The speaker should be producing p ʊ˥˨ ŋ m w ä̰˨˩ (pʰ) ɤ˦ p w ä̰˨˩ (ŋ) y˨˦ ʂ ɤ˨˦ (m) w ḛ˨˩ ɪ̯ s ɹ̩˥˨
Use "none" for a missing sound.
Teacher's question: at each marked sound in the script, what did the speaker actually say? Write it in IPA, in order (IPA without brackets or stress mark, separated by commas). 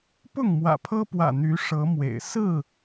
pʰ, n̪, m